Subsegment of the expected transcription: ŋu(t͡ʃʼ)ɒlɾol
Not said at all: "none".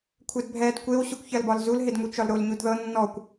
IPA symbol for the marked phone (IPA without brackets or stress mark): t͡ʃ